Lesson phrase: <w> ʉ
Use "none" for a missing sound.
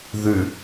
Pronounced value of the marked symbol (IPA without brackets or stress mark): ð